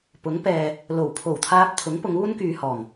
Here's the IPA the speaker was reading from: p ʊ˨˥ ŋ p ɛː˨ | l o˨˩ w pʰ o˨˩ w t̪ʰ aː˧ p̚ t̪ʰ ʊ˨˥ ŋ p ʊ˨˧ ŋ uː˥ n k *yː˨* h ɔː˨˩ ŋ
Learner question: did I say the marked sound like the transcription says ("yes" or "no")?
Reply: yes